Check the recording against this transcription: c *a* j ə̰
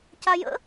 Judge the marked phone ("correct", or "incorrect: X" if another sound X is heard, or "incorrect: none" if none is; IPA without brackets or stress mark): correct